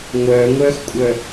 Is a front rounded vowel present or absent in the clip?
present